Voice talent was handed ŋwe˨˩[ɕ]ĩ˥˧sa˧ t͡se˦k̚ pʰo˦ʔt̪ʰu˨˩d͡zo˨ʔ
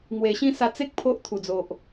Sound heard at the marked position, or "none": ɕ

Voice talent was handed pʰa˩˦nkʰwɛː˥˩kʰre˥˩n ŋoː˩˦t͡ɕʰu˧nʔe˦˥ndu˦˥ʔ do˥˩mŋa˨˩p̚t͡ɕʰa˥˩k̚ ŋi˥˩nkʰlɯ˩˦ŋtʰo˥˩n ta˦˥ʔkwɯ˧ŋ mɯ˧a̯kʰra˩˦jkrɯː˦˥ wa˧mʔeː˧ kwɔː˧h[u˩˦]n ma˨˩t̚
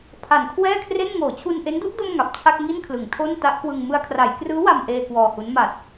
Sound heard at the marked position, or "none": u˦˥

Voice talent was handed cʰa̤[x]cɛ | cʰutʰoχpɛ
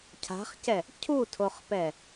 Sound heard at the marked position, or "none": χ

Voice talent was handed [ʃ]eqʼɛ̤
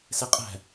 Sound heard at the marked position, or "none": s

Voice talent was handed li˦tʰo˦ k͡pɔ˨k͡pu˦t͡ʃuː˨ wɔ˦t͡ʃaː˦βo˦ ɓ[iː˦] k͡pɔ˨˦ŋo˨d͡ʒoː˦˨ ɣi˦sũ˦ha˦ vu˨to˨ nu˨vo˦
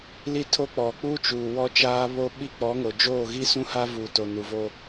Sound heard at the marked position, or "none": i˦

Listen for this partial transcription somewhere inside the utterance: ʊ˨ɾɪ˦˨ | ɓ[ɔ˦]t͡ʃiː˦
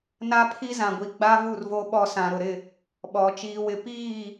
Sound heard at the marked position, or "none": ɔ˨˦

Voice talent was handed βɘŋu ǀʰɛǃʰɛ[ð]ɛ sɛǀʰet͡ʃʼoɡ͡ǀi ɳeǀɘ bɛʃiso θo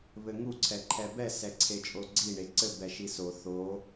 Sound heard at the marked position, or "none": b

